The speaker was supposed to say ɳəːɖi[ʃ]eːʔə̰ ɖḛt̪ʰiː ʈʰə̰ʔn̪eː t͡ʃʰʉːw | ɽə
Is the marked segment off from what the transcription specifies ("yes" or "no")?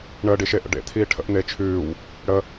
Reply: no